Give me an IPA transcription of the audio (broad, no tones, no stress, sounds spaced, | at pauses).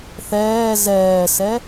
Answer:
θ ɛː z ɛː s ɛ